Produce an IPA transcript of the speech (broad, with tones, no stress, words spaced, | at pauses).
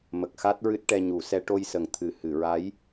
mə˨˩k̚xa˦˥t̚ɹɨ˦˥t̚ ʈɛ˧ɲu˨˩˦sɛ˧˥ ʈo˧jsə˨˩ŋ t̪ʰɨ˨˩ hɨ˨˩˨ɹa˧˥j